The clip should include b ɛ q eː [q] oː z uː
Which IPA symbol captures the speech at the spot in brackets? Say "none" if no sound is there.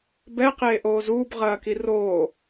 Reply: ʔ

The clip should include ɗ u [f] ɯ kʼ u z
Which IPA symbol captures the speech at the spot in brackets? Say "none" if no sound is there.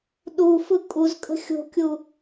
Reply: f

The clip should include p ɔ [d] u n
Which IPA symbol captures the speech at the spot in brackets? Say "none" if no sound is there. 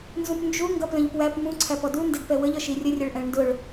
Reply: d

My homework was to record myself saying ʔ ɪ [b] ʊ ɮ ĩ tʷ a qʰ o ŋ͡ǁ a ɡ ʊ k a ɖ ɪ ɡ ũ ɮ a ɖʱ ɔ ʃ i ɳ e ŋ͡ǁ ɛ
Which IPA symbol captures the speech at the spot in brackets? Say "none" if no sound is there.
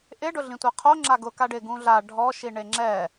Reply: ɖ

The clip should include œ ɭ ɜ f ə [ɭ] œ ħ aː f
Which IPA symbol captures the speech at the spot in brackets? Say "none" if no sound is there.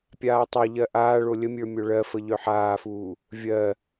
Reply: ʎ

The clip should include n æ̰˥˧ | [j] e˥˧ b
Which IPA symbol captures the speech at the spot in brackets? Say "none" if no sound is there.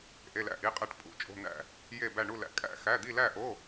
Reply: j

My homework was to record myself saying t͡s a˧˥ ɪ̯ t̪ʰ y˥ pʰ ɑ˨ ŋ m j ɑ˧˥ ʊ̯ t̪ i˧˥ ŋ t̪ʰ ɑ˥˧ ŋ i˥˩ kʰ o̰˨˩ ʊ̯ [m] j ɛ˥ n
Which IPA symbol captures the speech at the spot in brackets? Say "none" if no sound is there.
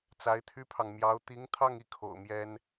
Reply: m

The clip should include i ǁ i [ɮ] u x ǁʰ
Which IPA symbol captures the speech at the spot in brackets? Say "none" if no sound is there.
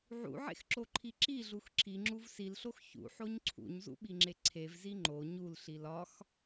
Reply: ɮ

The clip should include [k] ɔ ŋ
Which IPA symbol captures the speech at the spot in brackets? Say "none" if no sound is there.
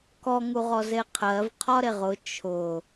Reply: k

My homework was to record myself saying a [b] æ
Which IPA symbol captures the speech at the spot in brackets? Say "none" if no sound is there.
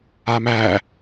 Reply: m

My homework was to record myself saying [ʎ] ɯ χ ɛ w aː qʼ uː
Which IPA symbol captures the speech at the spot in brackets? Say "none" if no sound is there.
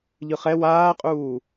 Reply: ʎ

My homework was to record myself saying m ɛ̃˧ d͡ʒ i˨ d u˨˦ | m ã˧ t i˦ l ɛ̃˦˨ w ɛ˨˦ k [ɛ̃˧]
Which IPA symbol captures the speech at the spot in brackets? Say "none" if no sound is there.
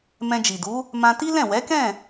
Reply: ɛ̃˦˨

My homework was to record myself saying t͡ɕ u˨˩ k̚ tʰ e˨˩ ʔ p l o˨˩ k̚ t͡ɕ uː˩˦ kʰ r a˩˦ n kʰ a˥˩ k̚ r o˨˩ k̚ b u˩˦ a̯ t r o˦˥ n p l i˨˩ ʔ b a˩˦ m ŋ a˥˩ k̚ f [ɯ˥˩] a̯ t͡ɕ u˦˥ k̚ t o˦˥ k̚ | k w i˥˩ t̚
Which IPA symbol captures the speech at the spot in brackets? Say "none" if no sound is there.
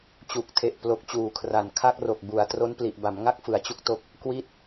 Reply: ɯ˩˦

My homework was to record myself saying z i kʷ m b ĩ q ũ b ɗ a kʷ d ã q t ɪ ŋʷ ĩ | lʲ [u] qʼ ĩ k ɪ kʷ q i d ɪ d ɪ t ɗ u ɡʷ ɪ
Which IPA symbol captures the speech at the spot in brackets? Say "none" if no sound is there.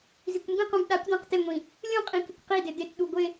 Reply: ũ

